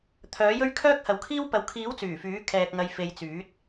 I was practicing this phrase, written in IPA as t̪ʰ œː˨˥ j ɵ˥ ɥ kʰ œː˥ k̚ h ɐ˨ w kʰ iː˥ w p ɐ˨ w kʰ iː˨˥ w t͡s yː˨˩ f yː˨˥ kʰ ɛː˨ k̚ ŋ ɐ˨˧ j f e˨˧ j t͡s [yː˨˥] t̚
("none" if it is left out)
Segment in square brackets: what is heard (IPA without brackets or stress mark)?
yː˨˥